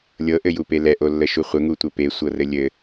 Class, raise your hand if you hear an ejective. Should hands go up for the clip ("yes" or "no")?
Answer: no